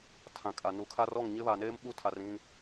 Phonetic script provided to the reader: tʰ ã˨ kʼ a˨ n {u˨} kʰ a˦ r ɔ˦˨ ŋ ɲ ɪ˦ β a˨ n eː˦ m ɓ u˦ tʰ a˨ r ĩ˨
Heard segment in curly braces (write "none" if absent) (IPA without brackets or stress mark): u˨